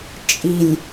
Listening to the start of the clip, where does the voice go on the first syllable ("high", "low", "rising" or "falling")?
low